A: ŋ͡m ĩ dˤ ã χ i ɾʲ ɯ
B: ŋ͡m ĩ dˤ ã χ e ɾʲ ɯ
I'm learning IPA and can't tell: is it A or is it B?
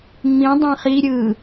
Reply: A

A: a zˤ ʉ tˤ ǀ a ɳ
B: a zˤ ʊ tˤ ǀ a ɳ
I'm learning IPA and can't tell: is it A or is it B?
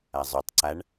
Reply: A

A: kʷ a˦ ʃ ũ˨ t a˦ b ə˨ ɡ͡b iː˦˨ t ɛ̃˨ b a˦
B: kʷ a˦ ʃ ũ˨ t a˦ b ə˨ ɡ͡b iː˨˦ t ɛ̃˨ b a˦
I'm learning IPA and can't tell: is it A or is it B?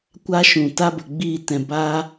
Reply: A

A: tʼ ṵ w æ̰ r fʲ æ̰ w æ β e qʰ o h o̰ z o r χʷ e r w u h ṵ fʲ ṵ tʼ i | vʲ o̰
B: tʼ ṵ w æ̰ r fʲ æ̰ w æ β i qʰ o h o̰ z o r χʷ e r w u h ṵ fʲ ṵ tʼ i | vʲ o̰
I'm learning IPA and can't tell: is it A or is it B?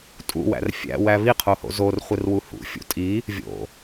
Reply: B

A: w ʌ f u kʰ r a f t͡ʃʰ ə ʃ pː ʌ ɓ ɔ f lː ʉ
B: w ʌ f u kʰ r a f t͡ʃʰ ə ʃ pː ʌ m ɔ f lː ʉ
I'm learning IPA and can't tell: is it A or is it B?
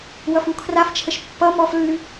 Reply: B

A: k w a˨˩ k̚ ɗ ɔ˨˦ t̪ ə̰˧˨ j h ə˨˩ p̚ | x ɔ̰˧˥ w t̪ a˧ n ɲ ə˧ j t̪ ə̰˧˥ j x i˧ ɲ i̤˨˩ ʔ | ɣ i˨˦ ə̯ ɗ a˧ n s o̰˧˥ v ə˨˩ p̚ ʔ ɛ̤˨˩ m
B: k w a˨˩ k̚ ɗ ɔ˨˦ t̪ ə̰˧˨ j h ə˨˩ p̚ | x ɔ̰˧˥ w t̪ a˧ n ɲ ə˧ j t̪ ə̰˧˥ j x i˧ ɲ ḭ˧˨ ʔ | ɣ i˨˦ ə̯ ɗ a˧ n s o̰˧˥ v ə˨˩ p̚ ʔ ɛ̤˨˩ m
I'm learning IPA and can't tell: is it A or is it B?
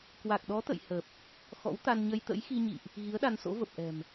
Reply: B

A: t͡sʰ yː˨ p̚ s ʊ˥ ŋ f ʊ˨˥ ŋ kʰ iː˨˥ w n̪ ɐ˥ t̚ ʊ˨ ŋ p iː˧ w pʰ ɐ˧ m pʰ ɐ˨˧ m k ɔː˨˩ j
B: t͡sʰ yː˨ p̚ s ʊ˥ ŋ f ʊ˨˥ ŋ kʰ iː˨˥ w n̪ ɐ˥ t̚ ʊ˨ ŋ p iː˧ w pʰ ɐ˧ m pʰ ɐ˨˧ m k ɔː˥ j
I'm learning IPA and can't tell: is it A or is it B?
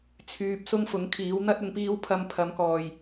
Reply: A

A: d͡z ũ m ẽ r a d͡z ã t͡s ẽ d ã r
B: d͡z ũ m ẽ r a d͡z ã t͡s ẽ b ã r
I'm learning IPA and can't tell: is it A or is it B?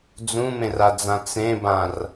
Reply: B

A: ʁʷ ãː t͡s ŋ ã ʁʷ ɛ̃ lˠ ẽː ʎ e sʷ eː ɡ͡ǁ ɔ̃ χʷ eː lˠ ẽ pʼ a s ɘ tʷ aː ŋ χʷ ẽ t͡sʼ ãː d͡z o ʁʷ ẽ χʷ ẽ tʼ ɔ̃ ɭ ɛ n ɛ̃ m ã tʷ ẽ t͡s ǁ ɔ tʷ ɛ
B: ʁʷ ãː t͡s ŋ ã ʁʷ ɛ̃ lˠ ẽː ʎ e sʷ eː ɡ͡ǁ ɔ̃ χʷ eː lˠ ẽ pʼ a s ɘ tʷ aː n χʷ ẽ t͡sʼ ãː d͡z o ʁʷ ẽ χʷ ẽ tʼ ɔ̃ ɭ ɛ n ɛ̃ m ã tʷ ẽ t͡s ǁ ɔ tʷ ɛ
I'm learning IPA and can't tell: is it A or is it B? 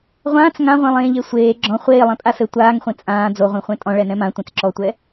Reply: A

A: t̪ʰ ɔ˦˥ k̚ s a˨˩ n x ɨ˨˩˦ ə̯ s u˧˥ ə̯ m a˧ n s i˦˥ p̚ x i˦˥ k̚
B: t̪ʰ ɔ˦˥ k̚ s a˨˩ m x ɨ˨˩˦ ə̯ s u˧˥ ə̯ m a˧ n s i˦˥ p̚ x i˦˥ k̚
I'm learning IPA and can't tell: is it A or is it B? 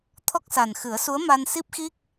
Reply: A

